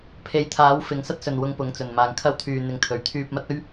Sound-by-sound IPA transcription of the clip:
pʰ e˨˥ j t̪ʰ aː˨˥ w f ɪ˨˧ ŋ s ɐ˥ t̚ s ɵ˨ n w ʊ˧ ŋ p ʊ˨˥ ŋ t͡s ɵ˨˩ n m aː˨˩ ŋ kʰ ɐ˥ w t̪ʰ yː˨ n̪ ɪ˨˥ ŋ t̪ʰ ɵ˨˩ ɥ t̪ʰ yː˧ p̚ m ɐ˥ t̚ ɵ˥ ɥ

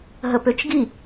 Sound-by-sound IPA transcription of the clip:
ɦ ə p ø t͡ʃ ɡ i

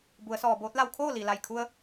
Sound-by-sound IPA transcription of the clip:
b u˩˧ ə̯ s ɔː˩ b oː˧˥ t̚ l a˧ w kʰ oː˥˨ l i˩ l a˧˩ j kʰ u˧ ə̯

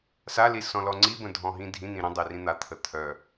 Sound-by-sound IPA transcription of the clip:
s a l i s ɔ̃ l ɔ ŋ͡ǀ i b ə̃ dʱ ɔ̃ ɦ ĩ dʱ ĩ n̪ ĩ ɾ ə̃ dˤ e r ĩ n̪ a t̪ʰ ə t̪ʰ œ

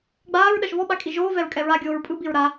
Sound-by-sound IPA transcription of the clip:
ɡ͡b aː ɹ ɗ ɜ ʃ v ɔ ɓ a kʼ i ʒ oː v ɛ ɹ kʼ ɛ ɹ a ɡʲ oː ɹ pʼ ɯ b i ɹ ɾ a

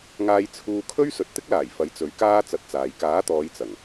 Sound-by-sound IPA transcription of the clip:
ŋ aː˧ j t͡sʰ uː˧ kʰ ɵ˥ ɥ s ɵ˨˥ t̚ t̪ ɪ˥ k̚ l aː˨˩ j f ɐ˨˥ j t͡s ɵ˨˥ ɥ k aː˥ t͡s ɐ˧ t̚ t͡s aː˨ j k aː˨˥ t̪ ɔː˨˧ j t͡s ɐ˨˩ ŋ

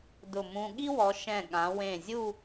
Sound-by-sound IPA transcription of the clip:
d ʊ˧˩ m ũ˧ ɠ i˥ w ɔ˩˧ ʃ ɛ̃˧˩ ɠ ã˩˧ w ẽ˧˩ zʲ u˥˧

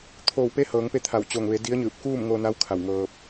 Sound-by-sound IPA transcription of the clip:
t̪ʰ oː˧˩ w p e˧˥ h ɤː˩˧ ŋ p e˧ t̪ʰ a˧˩ w t͡ɕ o˧˩ ŋ ʋ e˩˧ d i˧˥ ə̯ ɲ ɯː˧˩ p̚ k uː˥˨ m ŋ o˧ n a˧˥ w kʰ a˧˩ w ŋ ɤː˧ p̚

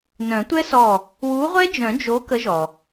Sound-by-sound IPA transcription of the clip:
n œ̃˨˩˦ tʷ ɛ˦˥ s ɔ˧˩ | w u˨˥ ʁʷ ɛ˦˥ d͡ʒ œ̃˨˩˦ d͡ʒ o˨˥ k ə˨˥ ʒ ɔ˩

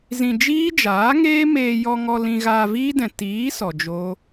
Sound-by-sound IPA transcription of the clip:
z ĩ˧ d͡ʒ iː˦ d͡ʒ aː˨˦ ŋ eː˦ m eː˧ j ɔ˧ ŋ ɔ˧ l ĩ˧ ɣ aː˧ v iː˦ d ɛ̃˨ t iː˨˦ s ɔ˨ d͡ʒ o˦

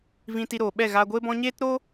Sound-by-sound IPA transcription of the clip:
v ĩ˧ t i˧ ɾ oː˨ ɓ ɛ˦˨ ɣ aː˧ ɡʷ eː˦ b ɔ̃˦ ɲ eː˦ t ɾ o˦

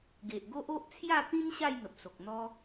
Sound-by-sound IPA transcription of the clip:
ɡ e˨ ʔ ɡ o˦ ʔ o˦ ʔ t͡sʰ j a˥˧ t̪ ĩ˦ n ɕ a˥˧ j n̪ ə˨ p̚ s o˨ k̚ n̪ ɔ˦

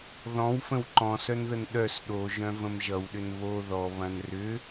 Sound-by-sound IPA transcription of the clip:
ð ɔ̃ w f ə̃ w ǃ ɔ̃ s œ n ð ə n ɗ œ s ɗ o ʒ œ̃ v ə̃ m ʒ ʌ w ɗ ʏ n β o ð ɔ β ɐ̃ n r ʏ

